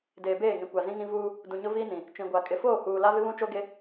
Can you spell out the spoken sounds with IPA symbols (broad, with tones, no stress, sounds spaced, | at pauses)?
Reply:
d eː˨ b eː˦˨ ŋ ĩ˨ kʷ a˨ z ĩ˦ ŋ ĩ˦ v uː˦ | d ũ˨ ɲ ʊ˦ v iː˦ n ĩ˨ | t͡ʃ ĩ˨ ɡʷ a˨ kʼ ɪ˨ f oː˦˨ h uː˨ l a˦ v ɪ˦ β ũ˦ t͡ʃ o˦ ɡ e˦